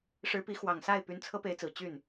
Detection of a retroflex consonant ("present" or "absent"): present